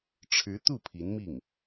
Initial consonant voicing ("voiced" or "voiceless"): voiceless